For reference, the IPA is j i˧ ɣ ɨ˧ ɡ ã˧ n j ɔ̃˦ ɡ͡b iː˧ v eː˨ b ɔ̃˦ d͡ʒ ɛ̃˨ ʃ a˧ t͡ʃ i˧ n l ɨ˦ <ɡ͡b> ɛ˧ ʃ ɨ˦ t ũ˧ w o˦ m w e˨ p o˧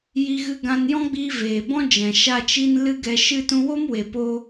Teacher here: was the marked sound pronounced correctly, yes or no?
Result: no